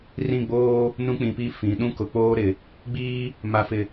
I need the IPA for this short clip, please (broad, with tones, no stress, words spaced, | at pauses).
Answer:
rĩ˦˨ɡ͡boː˦ | nũ˦k͡pĩ˨pi˦fĩ˨ ɗũ˦kʊ˨k͡poː˦ ɾɪ˨ | ɡ͡biː˦ | ma˨fɪ˨